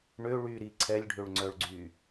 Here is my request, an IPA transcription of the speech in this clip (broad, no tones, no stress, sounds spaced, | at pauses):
ɳ ø ɭ y ɾ i ǀʰ ɛ lʲ ɖʱ ø ɭ ŋ͡ǀ œ ɭ ɡ͡ǀ y